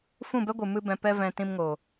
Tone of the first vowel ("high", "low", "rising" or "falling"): falling